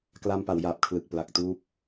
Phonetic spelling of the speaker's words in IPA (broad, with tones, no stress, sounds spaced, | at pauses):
k l a˧ m p a˩˦ w j aː˨˩ p̚ kʰ l ɯ˨˩ k̚ p l a˨˩ k̚ t uː˦˥ p̚